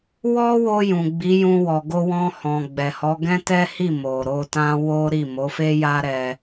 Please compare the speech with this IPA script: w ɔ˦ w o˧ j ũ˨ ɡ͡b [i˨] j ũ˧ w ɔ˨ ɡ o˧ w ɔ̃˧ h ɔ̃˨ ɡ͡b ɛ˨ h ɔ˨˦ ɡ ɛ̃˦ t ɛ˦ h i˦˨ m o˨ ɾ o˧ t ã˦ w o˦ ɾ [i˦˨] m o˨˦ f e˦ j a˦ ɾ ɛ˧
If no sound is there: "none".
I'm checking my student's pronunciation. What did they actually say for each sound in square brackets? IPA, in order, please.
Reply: i˨˦, i˦˨

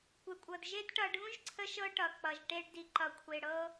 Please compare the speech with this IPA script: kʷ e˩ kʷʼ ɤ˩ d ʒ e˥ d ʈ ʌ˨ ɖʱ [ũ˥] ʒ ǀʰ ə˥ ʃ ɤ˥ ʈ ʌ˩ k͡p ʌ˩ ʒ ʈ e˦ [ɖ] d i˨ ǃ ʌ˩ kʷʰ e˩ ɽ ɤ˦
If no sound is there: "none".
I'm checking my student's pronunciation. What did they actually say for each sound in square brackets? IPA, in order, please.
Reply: ũ˥, ɖ

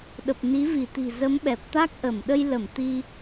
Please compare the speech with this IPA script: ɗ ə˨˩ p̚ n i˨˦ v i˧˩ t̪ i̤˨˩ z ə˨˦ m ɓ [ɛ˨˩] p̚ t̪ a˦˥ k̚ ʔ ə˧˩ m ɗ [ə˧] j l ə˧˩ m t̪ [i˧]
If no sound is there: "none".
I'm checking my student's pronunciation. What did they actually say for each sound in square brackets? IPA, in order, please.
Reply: ɛ˨˩, ə˧, i˧

